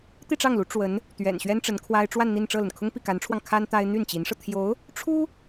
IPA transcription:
t̪ i˥˧ ʈ͡ʂ ɑ˥˩ ŋ l u˧˥ ʈ͡ʂ w ə˧˥ n | t̪ ɥ ɛ̰˨˩ n ɕ ɥ ɛ˥ n ʈ͡ʂ ə˧˥ n kʰ w a˥ ɪ̯ ʈ͡ʂ w a˥˧ n n̪ i˥˧ n ʈ͡ʂ ɤ˥˩ l ə˩ n kʰ ʊ˥ ŋ p i˥˩ k a˧˥ n ʈ͡ʂʰ w ɑ˧ ŋ kʰ a˥ n t̪ a˥ ɪ̯ n̪ y˥˩ n t͡ɕ i˧˥ n ʂ ɤ˧ t̪ʰ j o˧˥ ʊ̯ | ʈ͡ʂʰ u˥

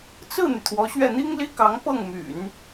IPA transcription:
t͡s ɹ̩˥˩ n̪ y˩ t̪ʰ w ɔ˧˥ ɕ ɥ ɛ˥˩ n̪ i˥ ŋ l i˥ k ɑ˧˥ ŋ p ɤ˥˩ ŋ m y̰˨˩˦ n

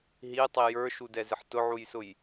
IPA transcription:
ɦ i tˤ i j ə˞ ʃ u d ɛ z ɪ ħ t ʊ ʕ u j s ʊ j

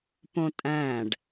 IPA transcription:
p õ tʼ æ̃ ɖ

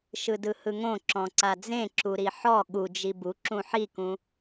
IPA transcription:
ʃ ɯ d ɯ h ɯ ŋ õ ǁ ɔ̃ ǀ a d͡z ẽ ǁ u ɾ i ħ ɔ ɠ u d͡ʒ i b u ǁ ũ ħ i k ũ

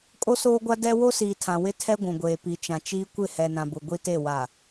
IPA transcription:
kʼ o˦ s oː˦ ɡʷ a˦ d ɛ˦ w o˦ s iː˨ tʰ ã˨ w ɪ˦ tʰ ɛ˦ ɡʷ ũ˨ ɡʷ eː˨ p i˨ t͡ʃ ã˨ t͡ʃ iː˦ kʷ ɪ˦˨ h ɛ˨ n ã˨ b ʊ˨ ɡʷ i˦ t e˦˨ w a˨

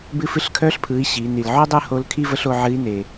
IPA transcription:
b ɨ˧ f ɨ˧ ɬ kʰ œ˧˥ ɬ pʰ ɯ˩˧ i̯ ɕ i˩˧ n i˩ l ʕ o˥ dˤ ɯ˥ h o˧˥ l kʰ i˥ v ə˧˥ ɬ o˧ ʕ ɨ˧˥ i̯ n e˩

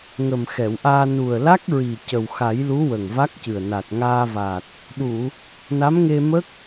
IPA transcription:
ŋ ə˨˩ m x ɛ˨˩˨ w ʔ aː˧ n u˨˩ ə̯ l a˦˥ k̚ ɹ i˨˩ c ə˨˩ w x a˨˩˦ j l u˧˥ w ə˨˩ ŋ v a˦˥ k̚ c ɨ˨˩ ə̯ n a˨˩ t̚ ŋ aː˧ v a˨˩ t̚ | ɗ u˨˩˨ | n a˧˥ m ŋ e˧ m ə˦˥ k̚

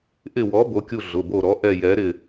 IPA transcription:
ʔ ɪ˦˨ w ɔ˨˥ b o˨˥ kʲ u˦˨ ɮ ʊ˩˧˩ b o˦˨ ɾ ɔ˨˥ ʔ ɛ˦˨ j ɛ˨˥ ɾ ɪ˦˨

